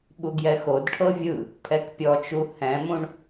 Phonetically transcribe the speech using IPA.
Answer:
ɓ u ɡ j ɛ x o d ʈʰ ɤ vʲ ɯ | pʰ ɛ k pʲ ɔ t͡ʃ u h ɛ̃ m ũ ɳ

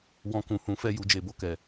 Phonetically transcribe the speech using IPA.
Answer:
w ɔ̃˧ k ũ˨ h ũ˨˦ f ɛ˦˨ j u˧ d͡ʒ e˨ b o˨ k ɛ˨

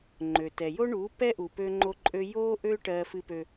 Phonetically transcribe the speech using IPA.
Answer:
ŋ͡ǃ ø˨ t ɛ˨ j o˦ ɳ u˨˦ p ɛ˦ ʔ u˨ p ø˦ ŋ͡ǃ o˦ ǃʼ ø˦ j o˦ ʔ ø˦ ʈ ɜ˦ f ɨ˦ p ø˦

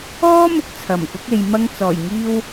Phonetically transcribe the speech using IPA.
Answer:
ɔː˥ m ʊ˧ k̚ t͡sʰ ɐ˨˩ m k ʊ˨˥ k̚ e˨ j m ɐ˧ ŋ t͡s ɔː˨˩ j ŋ iː˧ w

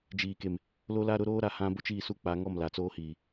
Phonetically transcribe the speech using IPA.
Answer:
d͡ʒ iː˨ k e˨ m | l o˦ l a˦ ɾ ʊ˦ ɾ oː˦ ɾ a˨ h ã˦ b ʊ˦ t͡ʃ iː˦˨ s u˦ k͡p a˨˦ ŋ ɔ˦˨ m l a˨ t͡s oː˦ h iː˨

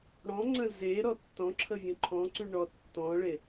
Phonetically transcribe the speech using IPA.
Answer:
ɽ ɔ̃ ŋ͡ǀ ə̃ z e ɾ ɔ tː ɔ̃ ǁʰ ə vʲ ə̃ ǃʰ ɔ̃ ǀ y ɳ ɔ tː ɔ̃ ɭ e

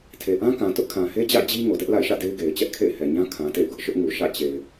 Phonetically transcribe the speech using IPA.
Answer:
tʰ e˨ ʔ ã˦ k ã˨ t ʊ˦ ʔ kʰ ã˨ h e˦ d͡ʑ ä̰˦˨ d͡ʑ i˦ ŋ o˨ d ɛ˦ ʔ l a̰˦˨ ɪ̯ ʃ ä̰˦˨ d e˦ ɪ̯ ɡ e˨ ɪ̯ t͡ɕ ɛ˦ ʔ kʰ ḛ˦˨ ɪ̯ h ɛ˨ ɲ ã˦ kʰ ã˨ t ḛ˦˨ ɪ̯ ɡ ʊ˦ ʔ ʃ ʊ˦ ʔ ŋ u˨ ʃ ä̰˦˨ t͡ɕ e˨ ɪ̯

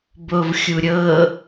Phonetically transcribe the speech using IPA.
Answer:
b o v xʲ u ɾʲ ɤ

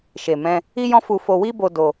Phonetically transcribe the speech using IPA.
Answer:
ʃ e˨ m ɛ̃˧ | i˦ j ɔ̃˦ f u˧ f o˧ w i˦ b o˧ d o˧

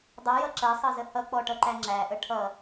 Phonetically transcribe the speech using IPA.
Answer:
dˤ ʌ j ʌ ǁ ɜ sˤ ʌ z ə h ʌ k͡p ɔ ʈ ʌ ǃ æ ŋ͡ǁ æ ʔ ə ʈʰ ʌ

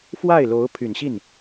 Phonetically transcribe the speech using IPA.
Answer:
f w a˥˩ ɪ̯ l o˧˥ ʊ̯ pʰ y˨˩ n ɕ i˥˩ n

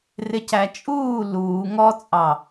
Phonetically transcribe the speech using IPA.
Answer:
r ɪ c æ t͡ʃʼ uː l uː ŋ ɔ t͡sʼ ɑ

